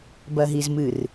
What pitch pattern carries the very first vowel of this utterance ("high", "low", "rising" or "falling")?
low